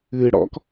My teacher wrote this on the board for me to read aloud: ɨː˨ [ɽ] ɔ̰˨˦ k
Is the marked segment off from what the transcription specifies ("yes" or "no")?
no